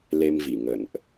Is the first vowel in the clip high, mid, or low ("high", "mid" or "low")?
mid